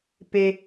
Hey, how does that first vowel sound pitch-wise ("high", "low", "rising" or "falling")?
low